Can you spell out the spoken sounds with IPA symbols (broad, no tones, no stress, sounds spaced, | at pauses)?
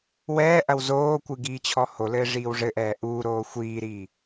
w ɛː ʔ ɐ w z oː kʷ ɨ ɡ iː t͡ɕʰ ɔ h o l ɘː ʐ iː w ʐ ɘ ʔ ɛː ʔ uː ɾ oː xʷ iː ɾ iː